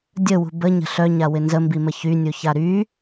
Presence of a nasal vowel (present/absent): absent